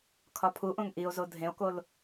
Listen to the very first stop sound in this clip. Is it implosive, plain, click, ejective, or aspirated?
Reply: aspirated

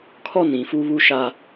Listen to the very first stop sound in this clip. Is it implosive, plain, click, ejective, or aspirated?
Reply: aspirated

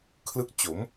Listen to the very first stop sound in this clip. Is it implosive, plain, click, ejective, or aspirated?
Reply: aspirated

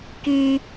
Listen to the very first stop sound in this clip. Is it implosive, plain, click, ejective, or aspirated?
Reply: plain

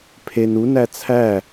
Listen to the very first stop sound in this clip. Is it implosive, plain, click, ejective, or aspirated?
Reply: aspirated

